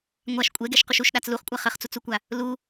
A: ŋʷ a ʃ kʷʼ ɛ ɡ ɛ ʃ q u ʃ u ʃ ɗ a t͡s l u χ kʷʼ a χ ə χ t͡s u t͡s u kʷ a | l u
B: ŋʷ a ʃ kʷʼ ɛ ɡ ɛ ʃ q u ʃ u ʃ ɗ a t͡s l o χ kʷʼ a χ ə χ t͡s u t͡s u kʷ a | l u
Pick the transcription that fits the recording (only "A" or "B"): A